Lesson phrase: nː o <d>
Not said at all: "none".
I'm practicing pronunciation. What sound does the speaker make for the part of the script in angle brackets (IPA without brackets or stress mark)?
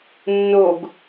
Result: ɡ